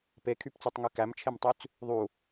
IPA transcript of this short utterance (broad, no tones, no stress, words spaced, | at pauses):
pekʰypt͡sʉtˤŋy kæmt͡ʃʰemtˤyt͡s | ðˤu